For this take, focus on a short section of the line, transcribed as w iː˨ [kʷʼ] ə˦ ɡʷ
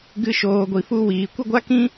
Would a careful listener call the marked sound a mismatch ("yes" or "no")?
yes